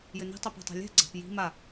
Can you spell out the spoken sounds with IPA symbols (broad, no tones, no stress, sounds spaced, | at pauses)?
j ɘ n i̤ tˤ i p a̤ tˤ a̤ lʲ ɛ̤ ɡ͡ǀ a̤ p j i̤ m a